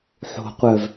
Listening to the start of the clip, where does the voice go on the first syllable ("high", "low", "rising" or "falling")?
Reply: low